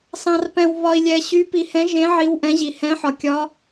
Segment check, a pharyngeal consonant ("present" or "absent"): present